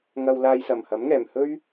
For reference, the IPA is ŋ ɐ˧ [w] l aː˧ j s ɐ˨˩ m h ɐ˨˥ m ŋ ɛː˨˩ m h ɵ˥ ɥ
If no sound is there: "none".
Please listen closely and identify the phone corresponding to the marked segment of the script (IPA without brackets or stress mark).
w